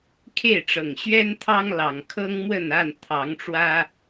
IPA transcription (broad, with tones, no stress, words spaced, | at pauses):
kʰe˥˨ɪ̯ʈ͡ʂɤ˨˩ŋɕɥɛ˦nt̪ʰɑ˦ŋ lɑ˨˩ŋkʰɤ˦ŋmwə˥˨na˥˨n t̪ʰɑ˨˦ŋʈ͡ʂwä˦